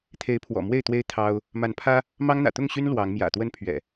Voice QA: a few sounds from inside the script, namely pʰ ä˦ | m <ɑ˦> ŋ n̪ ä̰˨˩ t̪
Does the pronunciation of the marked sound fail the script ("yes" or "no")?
no